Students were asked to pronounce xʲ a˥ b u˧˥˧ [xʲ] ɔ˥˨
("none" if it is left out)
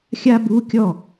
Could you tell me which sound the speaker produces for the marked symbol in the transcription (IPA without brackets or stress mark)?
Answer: kʲ